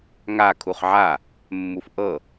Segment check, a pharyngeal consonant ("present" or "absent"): present